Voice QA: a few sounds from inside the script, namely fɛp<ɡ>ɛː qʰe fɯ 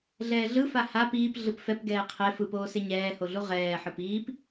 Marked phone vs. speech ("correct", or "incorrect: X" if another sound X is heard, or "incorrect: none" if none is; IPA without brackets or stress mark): correct